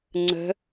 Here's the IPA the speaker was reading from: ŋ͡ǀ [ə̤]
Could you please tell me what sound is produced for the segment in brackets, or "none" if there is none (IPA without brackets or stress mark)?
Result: ə̤